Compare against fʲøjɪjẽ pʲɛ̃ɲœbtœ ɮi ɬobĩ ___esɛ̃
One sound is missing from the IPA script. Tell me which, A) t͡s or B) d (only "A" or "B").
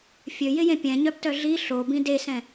B